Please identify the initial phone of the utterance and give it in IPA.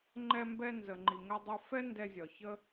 ŋ͡ǃ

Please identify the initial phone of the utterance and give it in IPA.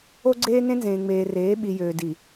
o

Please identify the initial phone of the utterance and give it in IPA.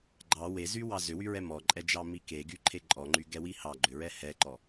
ɡ͡ǃ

